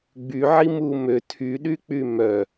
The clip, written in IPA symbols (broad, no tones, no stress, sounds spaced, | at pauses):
ɡ͡b y ʕ i m u m ø tʰ y ɗ y k͡p y m œ